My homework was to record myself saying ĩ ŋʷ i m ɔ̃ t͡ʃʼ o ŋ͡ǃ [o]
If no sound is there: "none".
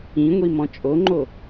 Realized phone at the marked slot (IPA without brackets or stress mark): o